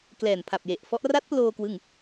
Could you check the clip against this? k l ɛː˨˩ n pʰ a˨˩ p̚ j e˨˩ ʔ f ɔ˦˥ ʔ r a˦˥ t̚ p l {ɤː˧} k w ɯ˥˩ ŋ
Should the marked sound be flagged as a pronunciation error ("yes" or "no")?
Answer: yes